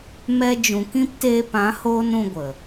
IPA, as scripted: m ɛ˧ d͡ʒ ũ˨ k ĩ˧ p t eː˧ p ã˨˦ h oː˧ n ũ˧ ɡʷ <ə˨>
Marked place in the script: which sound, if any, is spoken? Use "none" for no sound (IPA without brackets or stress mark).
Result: ə˨